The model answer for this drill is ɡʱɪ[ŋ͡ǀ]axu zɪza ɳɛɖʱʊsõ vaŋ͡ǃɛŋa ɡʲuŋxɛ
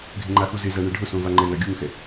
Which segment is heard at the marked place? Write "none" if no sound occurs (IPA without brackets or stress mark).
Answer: ŋ͡ǃ